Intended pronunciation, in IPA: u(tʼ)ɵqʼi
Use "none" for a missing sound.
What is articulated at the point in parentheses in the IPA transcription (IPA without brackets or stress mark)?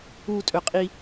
tʼ